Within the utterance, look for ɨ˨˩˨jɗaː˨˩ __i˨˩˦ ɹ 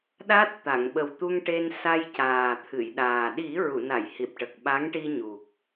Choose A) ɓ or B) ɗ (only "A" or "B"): B